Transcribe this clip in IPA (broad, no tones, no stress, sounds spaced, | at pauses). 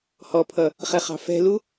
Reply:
h ɔ pʰ ʌ | χ ɛ χ ɑ̤ f ɛ̤ l u